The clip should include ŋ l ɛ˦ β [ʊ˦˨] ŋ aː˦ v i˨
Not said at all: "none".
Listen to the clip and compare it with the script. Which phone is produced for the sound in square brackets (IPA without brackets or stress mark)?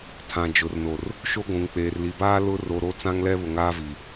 ʊ˨